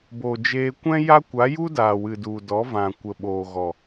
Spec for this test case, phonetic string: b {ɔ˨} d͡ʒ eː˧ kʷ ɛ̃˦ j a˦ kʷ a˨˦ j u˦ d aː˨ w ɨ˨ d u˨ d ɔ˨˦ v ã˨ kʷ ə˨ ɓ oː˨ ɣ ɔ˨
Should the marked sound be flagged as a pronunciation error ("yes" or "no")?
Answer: yes